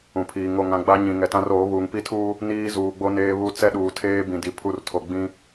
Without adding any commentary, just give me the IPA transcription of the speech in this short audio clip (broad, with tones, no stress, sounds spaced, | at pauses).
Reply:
ũ˨ pʰ iː˨ ŋ o˨ ŋ ã˨ ɡ͡b a˦ ɲ ĩ˨ ŋ ɛ˨ t ã˦ r oː˨˦ β uː˨ ŋ p i˦ tʰ uː˦ | n iː˦ z uː˨ ɡ͡b o˦ n eː˦ β u˦ t͡s ɛ˦ ɗ uː˨ tʰ eː˦ b ĩ˨ d i˨ pʰ u˦˨ r tʰ o˨ ɡ͡b ĩ˦